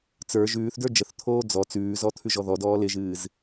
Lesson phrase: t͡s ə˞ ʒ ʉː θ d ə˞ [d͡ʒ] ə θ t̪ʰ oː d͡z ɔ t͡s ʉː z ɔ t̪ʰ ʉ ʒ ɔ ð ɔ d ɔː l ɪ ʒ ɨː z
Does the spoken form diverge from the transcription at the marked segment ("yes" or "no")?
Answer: no